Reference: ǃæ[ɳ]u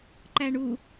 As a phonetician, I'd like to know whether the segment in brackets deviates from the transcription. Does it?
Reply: no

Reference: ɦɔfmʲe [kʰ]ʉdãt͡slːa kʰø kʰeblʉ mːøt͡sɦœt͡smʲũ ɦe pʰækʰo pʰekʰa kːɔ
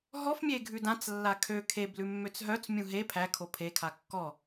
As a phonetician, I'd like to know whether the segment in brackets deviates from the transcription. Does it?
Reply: yes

